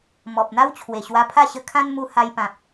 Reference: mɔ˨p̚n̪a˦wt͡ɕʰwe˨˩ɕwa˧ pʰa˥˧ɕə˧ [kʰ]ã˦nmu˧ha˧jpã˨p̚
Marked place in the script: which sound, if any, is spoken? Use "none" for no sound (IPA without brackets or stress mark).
kʰ